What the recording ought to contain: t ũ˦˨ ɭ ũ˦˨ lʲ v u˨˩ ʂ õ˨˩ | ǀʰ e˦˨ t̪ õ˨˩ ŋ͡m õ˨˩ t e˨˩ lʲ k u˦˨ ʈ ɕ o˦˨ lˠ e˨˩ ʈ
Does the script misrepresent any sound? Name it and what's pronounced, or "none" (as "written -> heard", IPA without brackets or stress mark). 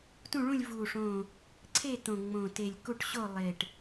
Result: none